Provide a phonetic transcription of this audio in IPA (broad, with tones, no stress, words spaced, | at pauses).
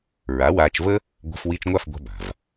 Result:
ɹa˩˥waː˧t͡ʃvə˥ | ɡʷa̤˧fwi˧t͡ʃŋʷa˥˩f ɡʷa̤˧ ba̤˩v